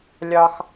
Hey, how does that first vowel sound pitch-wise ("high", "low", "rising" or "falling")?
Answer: high